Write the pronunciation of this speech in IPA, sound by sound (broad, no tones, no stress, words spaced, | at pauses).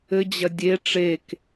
ɘd͡ʑɐ dʲe ʈ͡ʂek